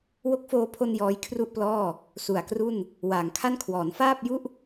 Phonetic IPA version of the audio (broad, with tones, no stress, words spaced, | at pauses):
wo˦˥k̚foː˧pʰo˧n jɔː˦˥jkʰru˥˩ʔplɔː˥˩ | su˨˩a̯kru˥˩n | waː˩˦ŋkʰa˥˩nkʰwɔː˩˦n faː˥˩p̚ju˥˩ʔ